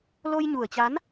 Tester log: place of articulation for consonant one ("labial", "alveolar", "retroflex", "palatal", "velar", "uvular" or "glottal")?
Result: alveolar